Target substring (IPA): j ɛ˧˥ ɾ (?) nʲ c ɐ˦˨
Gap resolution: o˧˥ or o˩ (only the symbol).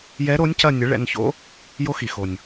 o˧˥